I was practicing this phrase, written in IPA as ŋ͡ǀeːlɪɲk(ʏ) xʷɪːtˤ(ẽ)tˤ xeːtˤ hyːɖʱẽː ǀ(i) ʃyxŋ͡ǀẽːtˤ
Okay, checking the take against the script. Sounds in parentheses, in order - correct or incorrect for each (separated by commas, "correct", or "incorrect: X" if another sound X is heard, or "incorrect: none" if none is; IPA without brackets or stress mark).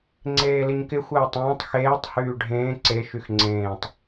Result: incorrect: ɪ, incorrect: ẽː, incorrect: e